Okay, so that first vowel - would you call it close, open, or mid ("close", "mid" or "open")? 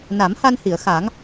open